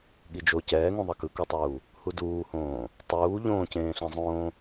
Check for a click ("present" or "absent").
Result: absent